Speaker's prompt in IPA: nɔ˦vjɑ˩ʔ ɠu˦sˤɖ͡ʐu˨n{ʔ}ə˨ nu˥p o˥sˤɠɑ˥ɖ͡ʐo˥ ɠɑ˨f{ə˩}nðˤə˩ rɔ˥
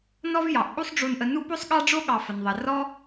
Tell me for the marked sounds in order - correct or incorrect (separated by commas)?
correct, correct